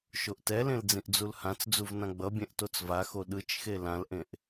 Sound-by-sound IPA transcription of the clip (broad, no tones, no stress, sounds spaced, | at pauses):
ʃ o ʔ t ɛ l ẽ l d͡z ĩ ʔ d͡z u l h ã t͡s d͡z u v n ã ɡ͡b ʌ bʲ ɛ̃ ʔ t o t͡s v a x o ɗ ɯ t͡ʃ x e l ã l ʔ ẽ ʔ